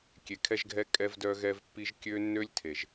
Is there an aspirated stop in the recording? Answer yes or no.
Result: yes